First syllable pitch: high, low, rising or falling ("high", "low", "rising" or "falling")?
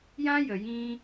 high